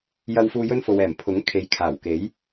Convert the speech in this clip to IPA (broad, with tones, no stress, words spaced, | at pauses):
jɐ˥wfuː˥ jɵ˥nfo˨wɛː˨˩m pʰʊ˨˥ŋ kʰe˨˥jkʰaː˨˩wke˨˥j